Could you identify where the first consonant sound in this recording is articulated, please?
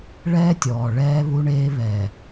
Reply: retroflex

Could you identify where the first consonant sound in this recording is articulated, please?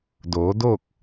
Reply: alveolar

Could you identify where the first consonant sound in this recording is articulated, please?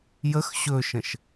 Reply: palatal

